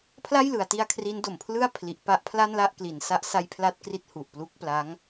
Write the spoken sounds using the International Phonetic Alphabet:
pʰ l a˥˩ j l ɯ˩˦ a̯ t i˧ a̯ kʰ r i˦˥ n d o˨˩ m pʰ l ɯ˥˩ a̯ pʰ l i˨˩ ʔ p a˦˥ ʔ pʰ l a˥˩ n l a˥˩ ʔ k l i˩˦ n s a˦˥ ʔ s a˦˥ j pʰ l a˦˥ t̚ k r i˦˥ t̚ h u˨˩ ʔ p l u˦˥ k̚ p l a˦˥ ŋ

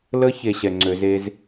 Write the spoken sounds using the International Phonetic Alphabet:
l ə˦ ç e˨ ɕ ɛ˨ ŋ͡ǀ ø˨˦ z e˦ z

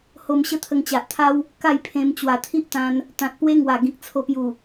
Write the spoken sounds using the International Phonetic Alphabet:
h o˧ m ɕ ə˦ t̪ʰ ə˧ ŋ t͡ɕ a˨ ʔ t̪ʰ a˦ w | k a˥˧ j pʰ ẽ˧ m t͡ɕ w a˨˩ t̪ʰ i˦ ʔ t̪ ã˧ n | t̪ ã˨ t̚ p w e˦ ŋ w a˨˩ ɡ ĩ˨ k̚ t͡sʰ o˧ p j u˨˩

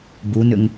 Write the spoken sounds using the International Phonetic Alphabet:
b u n ʏ ŋ

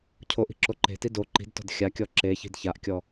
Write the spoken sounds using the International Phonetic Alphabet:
cʰ o ʔ i̤ ǁ o ǃ e̤ t i d o ǃ i̤ d t ɔ̤ d xʲ a kʲ ɔ ǁ e ç i̤ d ç a ʔ kʲ ɔ

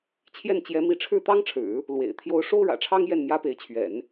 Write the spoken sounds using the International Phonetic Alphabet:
t͡ɕʰ j ɛ˥˩ n t͡ɕ j ɛ˧˥ m i˧˥ ʈ͡ʂʰ ɻ̩˥˩ t̪ ɑ˥ ŋ ʈ͡ʂʰ ɻ̩˨˩˦ | l w ḛ˨˩ ɪ̯ t̪ʰ j o˧˥ ʊ̯ ʂ o˥ ʊ̯ ɻ ä̰˨˩ ʈ͡ʂʰ ɑ˥ ŋ j ɛ˥˩ n m j ä˥ p e˧˥ ɪ̯ t͡ɕʰ ɥ ɛ̰˨˩˦ n

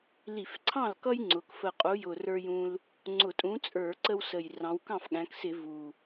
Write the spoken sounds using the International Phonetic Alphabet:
l i˧˩˧ f ǀʰ ɑ̃˥˩ l k ʌ˦ j ŋ͡ǀ ʊ˩˧ k f ə˨˩ qʼ u˨˥ j ʊ˨˩ r ə˞˦ j ũ˦ l | ŋ͡ǀ ʊ˧˩˧ tʼ ũ˨˥ t͡sʼ ə˞˧˩˧ ǀ ə˦ w s ə˨˩ j r ɑ̃˩˧ w k ɑ̃˥˩ f ɠ æ̃˩˧ k s ɪ˧˩˧ v u˨˩

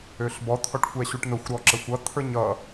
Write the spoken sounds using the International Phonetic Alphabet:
ø ɬ b ɔ t̪ʰ ɔ ʈ xʷ ɛ ɕ u ʈ n ʊ xʷ ɾ ɔ ǁ ə xʷ ʌ t̪ʰ ə˞ ɲ ʌ

